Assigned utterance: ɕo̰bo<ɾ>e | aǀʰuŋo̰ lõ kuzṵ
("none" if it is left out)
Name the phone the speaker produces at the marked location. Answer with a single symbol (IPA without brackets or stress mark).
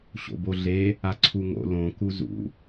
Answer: ɮ